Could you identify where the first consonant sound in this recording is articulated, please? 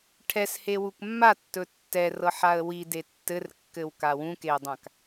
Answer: retroflex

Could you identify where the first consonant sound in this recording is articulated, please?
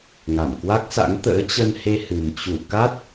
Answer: velar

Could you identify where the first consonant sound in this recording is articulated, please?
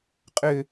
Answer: uvular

